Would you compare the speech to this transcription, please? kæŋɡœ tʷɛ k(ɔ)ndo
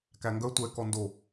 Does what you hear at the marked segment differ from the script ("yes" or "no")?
no